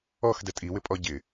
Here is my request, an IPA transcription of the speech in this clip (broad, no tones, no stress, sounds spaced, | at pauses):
ɔ x d ɛ tʼ i w ɪ pʼ ɔ ɟ ɪ